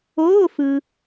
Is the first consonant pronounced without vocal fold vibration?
yes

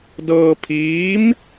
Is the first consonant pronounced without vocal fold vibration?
no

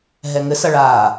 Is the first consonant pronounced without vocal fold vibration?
no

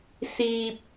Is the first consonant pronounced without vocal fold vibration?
yes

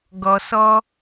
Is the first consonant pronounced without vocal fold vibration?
no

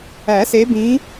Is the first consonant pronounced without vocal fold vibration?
yes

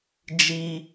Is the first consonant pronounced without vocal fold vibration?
no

